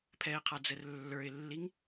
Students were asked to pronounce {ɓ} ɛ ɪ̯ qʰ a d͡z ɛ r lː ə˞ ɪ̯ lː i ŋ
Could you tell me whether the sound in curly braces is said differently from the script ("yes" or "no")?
yes